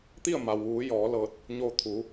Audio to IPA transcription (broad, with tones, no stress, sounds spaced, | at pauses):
t̪ i˥˨ ə̯ m a˩ w ʋ uː˩˧ j ɔː˩˧ l ɤː˧˩ t̚ | ɲ oː˧ t̪ʰ uː˩˧